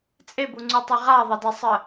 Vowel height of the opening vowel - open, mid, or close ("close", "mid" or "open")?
mid